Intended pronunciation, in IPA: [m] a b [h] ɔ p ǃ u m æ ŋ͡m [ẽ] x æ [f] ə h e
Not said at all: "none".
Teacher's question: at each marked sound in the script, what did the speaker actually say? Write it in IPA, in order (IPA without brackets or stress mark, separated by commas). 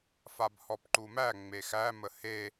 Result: f, h, e, m